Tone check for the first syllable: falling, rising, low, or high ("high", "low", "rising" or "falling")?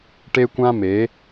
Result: high